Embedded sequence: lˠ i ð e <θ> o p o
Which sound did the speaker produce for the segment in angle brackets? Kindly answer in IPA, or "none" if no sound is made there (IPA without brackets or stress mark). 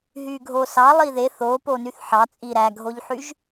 θ